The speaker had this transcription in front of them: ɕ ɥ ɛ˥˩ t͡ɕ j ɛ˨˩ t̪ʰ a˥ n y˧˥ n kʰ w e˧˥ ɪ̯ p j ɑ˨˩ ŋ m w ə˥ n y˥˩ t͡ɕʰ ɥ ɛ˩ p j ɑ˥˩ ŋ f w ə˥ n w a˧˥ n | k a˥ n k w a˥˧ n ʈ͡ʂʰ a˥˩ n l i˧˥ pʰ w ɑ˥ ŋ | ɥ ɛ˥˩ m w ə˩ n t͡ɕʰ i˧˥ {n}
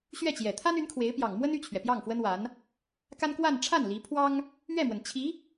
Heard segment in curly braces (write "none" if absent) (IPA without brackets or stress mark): none